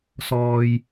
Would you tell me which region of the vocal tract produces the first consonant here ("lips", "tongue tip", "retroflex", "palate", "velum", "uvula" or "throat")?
tongue tip